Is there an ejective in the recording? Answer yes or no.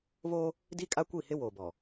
yes